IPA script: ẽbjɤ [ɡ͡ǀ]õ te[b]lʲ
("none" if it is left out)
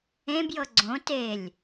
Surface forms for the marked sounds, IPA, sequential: ɡ͡ǀ, none

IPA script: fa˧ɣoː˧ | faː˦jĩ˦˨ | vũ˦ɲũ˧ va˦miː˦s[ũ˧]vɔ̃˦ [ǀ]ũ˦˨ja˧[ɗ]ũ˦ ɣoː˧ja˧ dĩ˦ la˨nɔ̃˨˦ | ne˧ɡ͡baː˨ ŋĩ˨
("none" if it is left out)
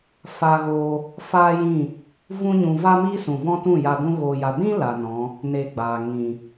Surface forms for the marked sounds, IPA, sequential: ũ˨, t, d

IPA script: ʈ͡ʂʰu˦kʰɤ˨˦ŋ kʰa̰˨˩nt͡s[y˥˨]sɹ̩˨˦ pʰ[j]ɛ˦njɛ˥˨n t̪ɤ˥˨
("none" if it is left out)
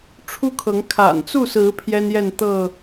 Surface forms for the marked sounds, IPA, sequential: u˥˨, j

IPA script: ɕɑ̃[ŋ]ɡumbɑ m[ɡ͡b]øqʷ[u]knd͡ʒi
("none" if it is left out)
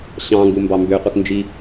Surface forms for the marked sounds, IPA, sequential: ŋ, b, ɯ

